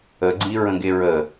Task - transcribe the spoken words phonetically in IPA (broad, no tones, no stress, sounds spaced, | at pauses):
ə ɡ͡ǀ i ɹ ə̃ ɡ e ɹ ə